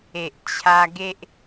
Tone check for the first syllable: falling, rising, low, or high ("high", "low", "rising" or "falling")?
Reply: low